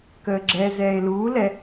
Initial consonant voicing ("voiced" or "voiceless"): voiceless